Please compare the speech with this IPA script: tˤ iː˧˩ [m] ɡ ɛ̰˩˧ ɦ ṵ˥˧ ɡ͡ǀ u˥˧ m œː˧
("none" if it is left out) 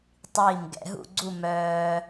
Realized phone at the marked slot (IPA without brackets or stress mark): m